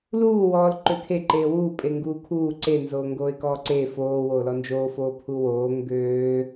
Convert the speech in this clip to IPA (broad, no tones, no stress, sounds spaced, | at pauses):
l uː w ɔː l ǃ ø kʰ e ǃ eː w uː pʼ e ŋ ɡ uː kʰ uː ǀ e n z oː ŋ ɡ oː ɪ̯ k ɔː ǀ eː f oː w oː l ɔ n d͡ʒ oː f oː pʰ u w oː ŋ ɡ øː